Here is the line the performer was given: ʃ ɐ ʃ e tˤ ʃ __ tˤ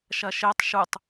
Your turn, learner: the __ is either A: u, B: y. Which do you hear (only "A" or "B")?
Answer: A